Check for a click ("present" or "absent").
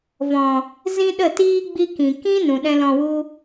absent